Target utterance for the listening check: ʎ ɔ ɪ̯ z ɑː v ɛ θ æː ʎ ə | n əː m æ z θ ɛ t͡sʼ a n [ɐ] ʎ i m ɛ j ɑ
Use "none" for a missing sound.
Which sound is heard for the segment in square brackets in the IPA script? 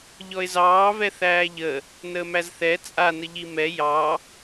ə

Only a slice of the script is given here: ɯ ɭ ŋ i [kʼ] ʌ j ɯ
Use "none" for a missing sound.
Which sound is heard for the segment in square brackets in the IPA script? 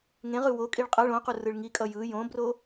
kʼ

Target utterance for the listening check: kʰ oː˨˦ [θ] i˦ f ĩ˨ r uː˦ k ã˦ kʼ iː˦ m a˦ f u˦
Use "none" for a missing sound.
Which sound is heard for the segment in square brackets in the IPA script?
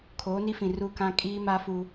n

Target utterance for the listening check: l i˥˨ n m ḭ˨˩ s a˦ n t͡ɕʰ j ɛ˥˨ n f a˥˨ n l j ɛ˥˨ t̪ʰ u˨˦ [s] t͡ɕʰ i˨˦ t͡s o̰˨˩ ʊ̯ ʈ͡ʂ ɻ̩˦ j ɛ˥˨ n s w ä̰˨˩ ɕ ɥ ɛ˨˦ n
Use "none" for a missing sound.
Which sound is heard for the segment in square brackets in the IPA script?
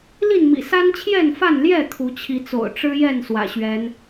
none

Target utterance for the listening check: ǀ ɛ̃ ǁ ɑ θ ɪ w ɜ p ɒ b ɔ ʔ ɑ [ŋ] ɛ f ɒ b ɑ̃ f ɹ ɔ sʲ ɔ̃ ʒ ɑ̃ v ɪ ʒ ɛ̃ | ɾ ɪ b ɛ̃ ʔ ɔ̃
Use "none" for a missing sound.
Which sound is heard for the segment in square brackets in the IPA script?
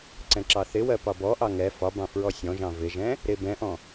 ŋ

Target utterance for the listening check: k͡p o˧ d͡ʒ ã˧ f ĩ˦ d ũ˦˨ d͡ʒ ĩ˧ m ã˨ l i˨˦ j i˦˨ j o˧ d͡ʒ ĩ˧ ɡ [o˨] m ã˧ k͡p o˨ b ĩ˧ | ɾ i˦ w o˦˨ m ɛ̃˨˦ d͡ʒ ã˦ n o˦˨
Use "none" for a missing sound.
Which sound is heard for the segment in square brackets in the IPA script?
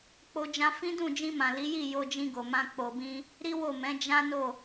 o˨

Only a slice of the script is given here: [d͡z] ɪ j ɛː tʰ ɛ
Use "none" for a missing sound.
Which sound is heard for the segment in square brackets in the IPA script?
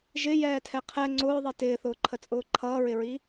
ʒ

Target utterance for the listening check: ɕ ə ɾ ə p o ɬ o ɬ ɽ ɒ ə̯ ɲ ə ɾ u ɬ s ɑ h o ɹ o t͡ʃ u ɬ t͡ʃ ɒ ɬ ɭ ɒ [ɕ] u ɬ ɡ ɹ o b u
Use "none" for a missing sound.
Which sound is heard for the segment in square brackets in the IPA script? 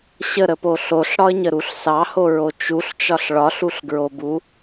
ɬ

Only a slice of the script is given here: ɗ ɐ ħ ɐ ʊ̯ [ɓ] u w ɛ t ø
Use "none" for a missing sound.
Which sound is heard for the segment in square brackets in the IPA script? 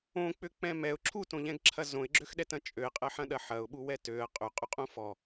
ɓ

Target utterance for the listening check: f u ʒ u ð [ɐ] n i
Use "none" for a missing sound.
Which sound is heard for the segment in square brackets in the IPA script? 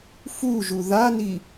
a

